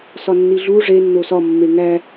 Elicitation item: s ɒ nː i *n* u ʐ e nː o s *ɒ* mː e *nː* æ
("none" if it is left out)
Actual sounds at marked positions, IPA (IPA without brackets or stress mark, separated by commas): ɮ, ɒ, ŋ